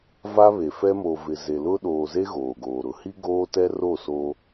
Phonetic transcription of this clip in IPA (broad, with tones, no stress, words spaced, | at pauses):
va˦βe˨fɛ˦ mo˨vɪ˨ ze˨ lʊ˦ ɗoː˨ze˦ ɣoː˨ɡoː˨ɾʊ˨˦ hi˦ ɡoː˦tɛ˦ro˦˨ soː˦